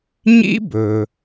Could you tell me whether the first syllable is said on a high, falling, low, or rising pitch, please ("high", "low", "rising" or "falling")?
high